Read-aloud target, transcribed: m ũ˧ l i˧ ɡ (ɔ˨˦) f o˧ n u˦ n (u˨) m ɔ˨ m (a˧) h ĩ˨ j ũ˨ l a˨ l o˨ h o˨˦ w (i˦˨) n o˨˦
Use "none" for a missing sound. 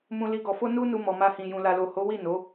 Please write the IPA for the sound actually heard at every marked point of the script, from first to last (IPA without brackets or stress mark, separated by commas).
ɔ˨, u˧, a˧, i˦˨